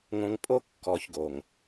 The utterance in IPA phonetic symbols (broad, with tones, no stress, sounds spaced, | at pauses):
ŋ õ˨ ŋ pʼ o˦ kː ɔ˨ ç ɡ o˨ ŋ